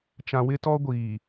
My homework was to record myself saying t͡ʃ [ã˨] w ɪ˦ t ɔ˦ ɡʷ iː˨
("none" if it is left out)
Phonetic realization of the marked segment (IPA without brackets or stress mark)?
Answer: ã˨